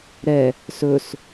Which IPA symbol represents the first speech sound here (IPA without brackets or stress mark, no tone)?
ɾ